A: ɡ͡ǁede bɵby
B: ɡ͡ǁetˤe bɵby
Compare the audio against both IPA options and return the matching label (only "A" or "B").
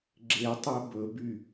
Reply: B